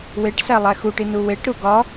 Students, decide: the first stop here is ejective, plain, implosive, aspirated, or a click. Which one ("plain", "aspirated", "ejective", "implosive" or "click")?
plain